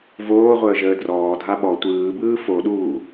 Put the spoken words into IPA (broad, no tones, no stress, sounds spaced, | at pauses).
v oː ʁʷ əː ʒ əː d r ɔː dʱ a ɓ ɔ tʷ ɯː b ɯː f o ɗ uː